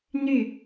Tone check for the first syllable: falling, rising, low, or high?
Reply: falling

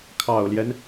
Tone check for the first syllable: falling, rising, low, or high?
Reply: low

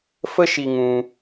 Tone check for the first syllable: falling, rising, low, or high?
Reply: high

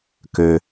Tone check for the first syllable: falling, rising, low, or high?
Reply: low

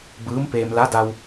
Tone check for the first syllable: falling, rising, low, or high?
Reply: rising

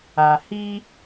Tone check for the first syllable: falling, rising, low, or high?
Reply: low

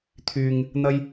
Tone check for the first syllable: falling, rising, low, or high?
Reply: low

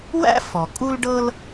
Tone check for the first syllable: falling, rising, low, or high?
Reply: high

